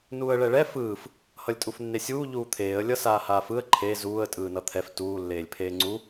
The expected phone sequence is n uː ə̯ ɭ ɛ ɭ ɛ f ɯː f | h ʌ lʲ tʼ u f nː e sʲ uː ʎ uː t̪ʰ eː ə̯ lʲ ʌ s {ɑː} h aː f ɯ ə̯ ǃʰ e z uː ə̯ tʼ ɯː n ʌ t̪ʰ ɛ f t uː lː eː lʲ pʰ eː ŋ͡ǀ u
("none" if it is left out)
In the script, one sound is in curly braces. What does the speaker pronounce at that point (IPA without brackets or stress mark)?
aː